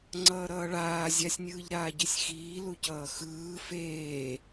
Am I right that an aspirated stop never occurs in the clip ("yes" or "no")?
yes